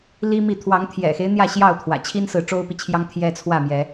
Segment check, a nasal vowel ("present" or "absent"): absent